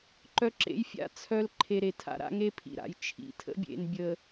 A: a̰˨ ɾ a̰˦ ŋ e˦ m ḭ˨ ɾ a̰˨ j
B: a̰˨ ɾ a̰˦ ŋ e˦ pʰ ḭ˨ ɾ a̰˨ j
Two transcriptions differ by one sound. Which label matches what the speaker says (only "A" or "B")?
B